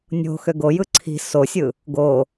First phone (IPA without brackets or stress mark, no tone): nʲ